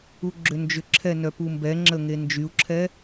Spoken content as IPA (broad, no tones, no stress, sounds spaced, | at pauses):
u ɡ͡ǁ ʏ n d͡ʒ ʏ ǁʰ ɛ n œ p u m b ɛ ŋ͡ǁ ə ŋ e n d͡ʒ y u̯ ǁʰ ɛ